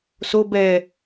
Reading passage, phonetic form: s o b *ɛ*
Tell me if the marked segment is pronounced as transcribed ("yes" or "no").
yes